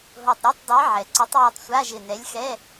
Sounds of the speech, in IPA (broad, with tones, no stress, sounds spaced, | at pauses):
ɦ o˧˩ tˤ ɾʲ ɔ˧˥˧ tˤ dˤ i˨˥ ʕ ɛ˩ ǀ ʊ˨˥ tˤ j u˧˩ tˤ sʷ a˧˥˧ ʒ ɪ˧˩ n ɛ˨˥ lʲ x ɛ˧˥˧